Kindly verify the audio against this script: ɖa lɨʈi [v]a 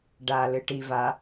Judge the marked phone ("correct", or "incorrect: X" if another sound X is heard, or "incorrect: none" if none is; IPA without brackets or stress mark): correct